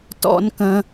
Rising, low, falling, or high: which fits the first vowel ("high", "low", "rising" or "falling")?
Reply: high